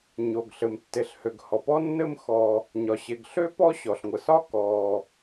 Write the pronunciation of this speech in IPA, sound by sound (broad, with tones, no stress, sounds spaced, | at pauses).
ɲ o˩ ɡ ɬ ɘ˩ m tː e˩ ɬ h ø˩ ɡ h ɔ˩ p ɔ˥ nː ɘ˥ m x ɔ˩ | ɲ ɒ˩ ɕ e˩ ɡ ɬ ø˥ p ɔ˥ ɕ ɔ˩ ɬ ŋʷ ɘ˩ s ɒ˥ k ɔ˩